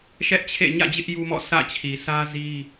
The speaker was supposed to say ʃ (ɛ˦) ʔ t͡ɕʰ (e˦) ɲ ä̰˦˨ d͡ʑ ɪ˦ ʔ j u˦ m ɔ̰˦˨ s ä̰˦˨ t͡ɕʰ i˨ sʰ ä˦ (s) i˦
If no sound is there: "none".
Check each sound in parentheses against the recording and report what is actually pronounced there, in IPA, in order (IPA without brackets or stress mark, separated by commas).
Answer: ɛ˦, ḛ˦˨, z